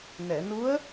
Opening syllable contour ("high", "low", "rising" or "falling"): low